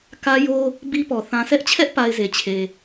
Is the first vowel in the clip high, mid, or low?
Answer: low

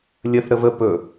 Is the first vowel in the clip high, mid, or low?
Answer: mid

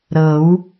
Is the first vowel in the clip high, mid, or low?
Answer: mid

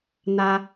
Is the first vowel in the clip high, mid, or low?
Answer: low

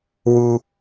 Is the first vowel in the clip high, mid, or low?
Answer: high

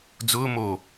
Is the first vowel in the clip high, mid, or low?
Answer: high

